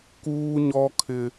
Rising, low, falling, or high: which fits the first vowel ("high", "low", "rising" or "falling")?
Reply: high